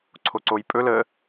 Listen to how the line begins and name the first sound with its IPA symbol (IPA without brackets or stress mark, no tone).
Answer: ǀʰ